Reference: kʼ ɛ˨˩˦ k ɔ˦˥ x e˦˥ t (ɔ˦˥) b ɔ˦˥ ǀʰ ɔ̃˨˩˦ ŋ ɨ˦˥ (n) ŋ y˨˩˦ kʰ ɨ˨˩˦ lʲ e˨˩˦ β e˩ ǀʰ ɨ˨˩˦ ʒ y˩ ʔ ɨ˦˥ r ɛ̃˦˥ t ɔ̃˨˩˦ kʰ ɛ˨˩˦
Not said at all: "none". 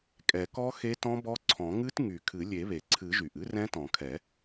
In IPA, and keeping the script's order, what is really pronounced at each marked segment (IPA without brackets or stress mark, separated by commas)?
ɔ̃˦˥, t